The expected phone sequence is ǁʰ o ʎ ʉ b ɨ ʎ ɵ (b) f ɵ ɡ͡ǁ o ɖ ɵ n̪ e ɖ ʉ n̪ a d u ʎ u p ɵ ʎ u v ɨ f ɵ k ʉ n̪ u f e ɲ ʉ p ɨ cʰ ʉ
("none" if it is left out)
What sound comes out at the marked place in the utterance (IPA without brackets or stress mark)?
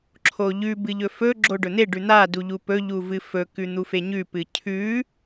none